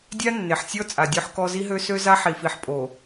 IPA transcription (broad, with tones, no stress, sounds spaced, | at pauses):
dʲ a˦ nː e˨ ħ sʲ ɔ˦ t͡sʼ a˨ dʲ ø˦ ħ k ɔ˦ z i˦ ɦ ø˦ s ø˦ z a˦ ħ i˨ f i˨ ħ pʼ o˨